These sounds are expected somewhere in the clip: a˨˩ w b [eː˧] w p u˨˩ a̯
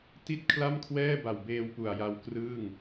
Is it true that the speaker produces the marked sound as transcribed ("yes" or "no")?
yes